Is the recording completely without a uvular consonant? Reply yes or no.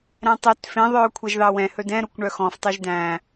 yes